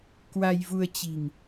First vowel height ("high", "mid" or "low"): low